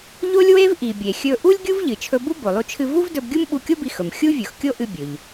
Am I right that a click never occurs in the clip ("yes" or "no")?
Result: yes